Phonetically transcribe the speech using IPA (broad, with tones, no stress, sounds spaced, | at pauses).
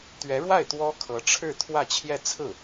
t̪ ɥ ɛ˧˥ ɻ w a˥˩ ɪ̯ t̪ w ɔ˥ kʰ ɤ˧˥ ʈ͡ʂʰ ɻ̩˥˧ t̪ʰ w ä˥˧ t͡ɕʰ j ɛ˥˧ t͡sʰ ɹ̩˥˩